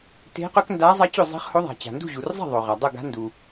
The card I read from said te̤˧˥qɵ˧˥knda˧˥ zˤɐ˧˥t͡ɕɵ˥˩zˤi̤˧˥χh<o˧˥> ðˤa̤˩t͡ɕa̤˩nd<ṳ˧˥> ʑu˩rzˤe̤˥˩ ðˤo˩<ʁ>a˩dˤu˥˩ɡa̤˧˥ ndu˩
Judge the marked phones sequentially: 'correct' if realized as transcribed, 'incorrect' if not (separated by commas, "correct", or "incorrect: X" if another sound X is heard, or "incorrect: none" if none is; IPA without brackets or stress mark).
correct, incorrect: ṳ˥˩, correct